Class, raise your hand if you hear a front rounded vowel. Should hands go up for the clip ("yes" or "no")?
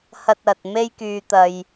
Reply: yes